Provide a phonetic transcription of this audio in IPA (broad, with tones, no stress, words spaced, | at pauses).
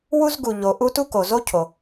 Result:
wu˥z ɡu˩ ʎo˩ʔu˥ tu˥ko˩zo˥ cʰo˩